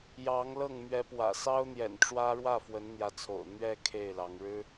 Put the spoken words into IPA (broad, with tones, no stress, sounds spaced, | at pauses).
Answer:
j ɑ˧˥ ŋ l ɤ˥˩ ŋ m ɥ ɛ˧˥ p w ä̰˨˩ s ɑ˥ ʊ̯ n̪ j ɛ̰˨˩ n ʈ͡ʂ w ä˥ ɻ w ä˥˩ f w ə˧˥ n n̪ j ä˧˥ t͡sʰ o̰˨˩ ʊ̯ n̪ ɥ ɛ˥˧ kʰ e˥˩ ɪ̯ l ɑ˧˥ ŋ ɻ ɻ̩˥